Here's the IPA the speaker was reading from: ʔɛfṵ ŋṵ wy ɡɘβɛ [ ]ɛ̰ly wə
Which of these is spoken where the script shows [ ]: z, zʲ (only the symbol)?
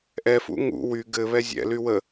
zʲ